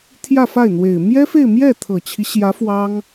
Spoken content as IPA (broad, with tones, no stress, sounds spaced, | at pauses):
t̪ʰ j ä˥˧ f a˥˩ ɪ̯ n̪ w e˨˩ ɪ̯ m j ɛ˥ f e˥˧ ɪ̯ m j ɛ˥˩ t̪ʰ ɤ˨˩ t͡ɕʰ i˦ ɕ j ä˧˥ f w ɑ˥ ŋ